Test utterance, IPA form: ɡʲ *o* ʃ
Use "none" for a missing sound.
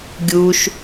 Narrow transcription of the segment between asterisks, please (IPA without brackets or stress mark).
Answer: u